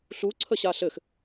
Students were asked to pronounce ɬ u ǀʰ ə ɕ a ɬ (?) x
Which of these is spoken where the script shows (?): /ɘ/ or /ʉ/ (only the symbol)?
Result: ɘ